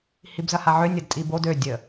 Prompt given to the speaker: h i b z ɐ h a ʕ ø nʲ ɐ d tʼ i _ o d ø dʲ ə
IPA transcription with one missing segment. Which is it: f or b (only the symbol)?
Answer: b